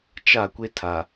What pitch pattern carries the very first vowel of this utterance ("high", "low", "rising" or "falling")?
falling